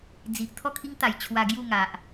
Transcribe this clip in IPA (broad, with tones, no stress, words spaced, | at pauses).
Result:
d͡zi˨ʔ t̪ʰɔ˥˧kʰi˦ŋ t̪a˨˩jt͡ɕʰwa˧ ɡju˥˧ŋa˨ʔ